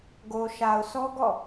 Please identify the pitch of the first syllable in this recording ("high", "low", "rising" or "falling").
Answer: low